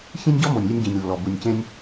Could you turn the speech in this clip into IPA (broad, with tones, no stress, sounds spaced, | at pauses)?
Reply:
ç ĩ˥ nʲ ɟ ɔ˥ m o˨˩ nʲ lʲ u˥ nʲ ɟ ĩ˨˩ nʲ lː ɔ˨˩ b u˨˩ nʲ c ẽ˥ nʲ